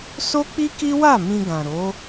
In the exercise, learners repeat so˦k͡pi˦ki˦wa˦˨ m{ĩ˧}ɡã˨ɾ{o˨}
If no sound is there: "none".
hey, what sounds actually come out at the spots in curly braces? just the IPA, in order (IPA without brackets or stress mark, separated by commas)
ĩ˧, o˨˦